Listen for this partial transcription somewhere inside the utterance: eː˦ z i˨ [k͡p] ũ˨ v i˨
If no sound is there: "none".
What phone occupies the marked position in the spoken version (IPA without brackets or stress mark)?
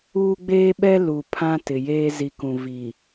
k